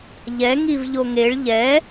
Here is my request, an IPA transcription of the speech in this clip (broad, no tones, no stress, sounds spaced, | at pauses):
ʎ ɛ ŋ i v ʎ o ŋ e ɭ ʎ ɛ